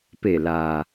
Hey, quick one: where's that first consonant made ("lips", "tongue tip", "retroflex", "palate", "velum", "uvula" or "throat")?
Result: lips